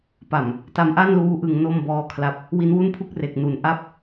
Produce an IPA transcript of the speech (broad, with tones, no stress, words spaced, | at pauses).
pa˨˩m | ta˧mʔa˥˩nluː˧ʔɯ˨˩ŋ no˥˩mbɔː˦˥kʰla˦˥p̚ | wi˦˥nwu˥˩npʰu˥˩k̚ re˨˩k̚nu˨˩n ʔa˥˩p̚